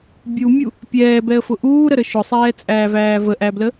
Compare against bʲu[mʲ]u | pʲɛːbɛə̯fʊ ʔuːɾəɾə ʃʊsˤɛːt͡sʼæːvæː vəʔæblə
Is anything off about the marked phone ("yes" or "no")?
no